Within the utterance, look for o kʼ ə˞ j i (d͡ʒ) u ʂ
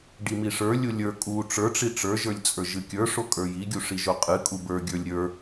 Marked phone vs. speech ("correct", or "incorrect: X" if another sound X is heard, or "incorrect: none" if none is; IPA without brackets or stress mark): incorrect: ɡʲ